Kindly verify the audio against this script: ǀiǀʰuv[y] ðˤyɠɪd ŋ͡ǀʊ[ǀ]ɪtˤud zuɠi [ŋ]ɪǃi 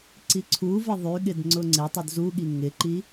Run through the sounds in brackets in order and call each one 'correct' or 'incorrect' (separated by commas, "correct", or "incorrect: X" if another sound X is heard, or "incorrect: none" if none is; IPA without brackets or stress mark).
incorrect: ɪ, incorrect: ŋ͡ǀ, correct